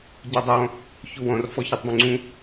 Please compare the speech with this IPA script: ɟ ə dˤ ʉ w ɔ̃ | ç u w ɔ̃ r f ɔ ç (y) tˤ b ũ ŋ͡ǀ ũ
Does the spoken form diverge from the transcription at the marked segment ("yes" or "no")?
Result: yes